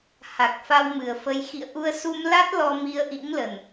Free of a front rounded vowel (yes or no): yes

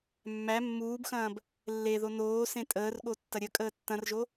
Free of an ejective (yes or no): no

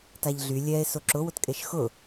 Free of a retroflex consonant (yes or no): yes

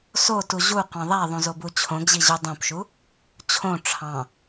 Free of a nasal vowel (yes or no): no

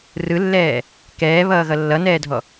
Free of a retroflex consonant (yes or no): yes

